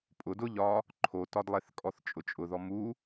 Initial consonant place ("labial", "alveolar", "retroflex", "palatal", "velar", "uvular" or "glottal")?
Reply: labial